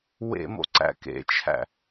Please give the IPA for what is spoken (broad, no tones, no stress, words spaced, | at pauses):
wḛmo̰ ǀæ̰kḛt͡ʃʰæ̰